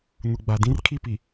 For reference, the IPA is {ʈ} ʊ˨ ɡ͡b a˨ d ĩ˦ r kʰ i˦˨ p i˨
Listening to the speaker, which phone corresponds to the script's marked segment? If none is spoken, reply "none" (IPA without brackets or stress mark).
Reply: n